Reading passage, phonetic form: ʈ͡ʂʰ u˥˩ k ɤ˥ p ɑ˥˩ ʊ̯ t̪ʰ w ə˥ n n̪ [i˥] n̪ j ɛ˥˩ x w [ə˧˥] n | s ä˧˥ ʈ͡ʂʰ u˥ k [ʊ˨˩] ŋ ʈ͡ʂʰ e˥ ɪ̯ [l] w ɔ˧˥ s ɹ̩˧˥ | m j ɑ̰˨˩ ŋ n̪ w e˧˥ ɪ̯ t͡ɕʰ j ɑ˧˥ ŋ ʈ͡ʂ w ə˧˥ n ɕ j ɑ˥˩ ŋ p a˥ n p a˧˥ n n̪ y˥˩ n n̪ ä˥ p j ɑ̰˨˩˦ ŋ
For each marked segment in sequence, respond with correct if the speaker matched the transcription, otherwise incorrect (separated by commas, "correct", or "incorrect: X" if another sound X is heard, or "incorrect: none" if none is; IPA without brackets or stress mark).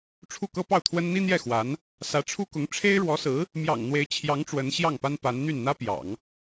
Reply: correct, incorrect: a˧˥, incorrect: ʊ˧˥, incorrect: ɻ